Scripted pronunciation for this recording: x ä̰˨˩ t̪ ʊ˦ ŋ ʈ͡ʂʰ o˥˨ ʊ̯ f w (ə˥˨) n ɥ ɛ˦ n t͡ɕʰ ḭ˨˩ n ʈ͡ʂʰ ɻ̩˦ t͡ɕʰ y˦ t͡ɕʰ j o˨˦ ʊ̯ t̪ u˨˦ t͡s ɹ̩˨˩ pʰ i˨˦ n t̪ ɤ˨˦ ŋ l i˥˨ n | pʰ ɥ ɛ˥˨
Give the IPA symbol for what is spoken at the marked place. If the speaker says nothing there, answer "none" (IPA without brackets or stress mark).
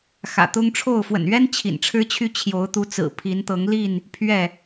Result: ə̰˨˩